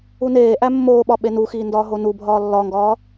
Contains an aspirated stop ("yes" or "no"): no